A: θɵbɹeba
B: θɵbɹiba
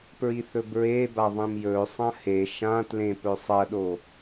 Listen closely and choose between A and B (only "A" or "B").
A